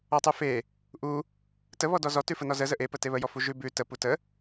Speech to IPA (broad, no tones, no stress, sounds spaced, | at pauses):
ɔ tˤ ʉ f e | ʔ u | t ə β ɔ d ɔ z ɔ t ʉ f ə n ɔ z ə z ə ʔ e p ə t e β ə j ɔ f u ʒ ʉ b ʉ t ə p u t ə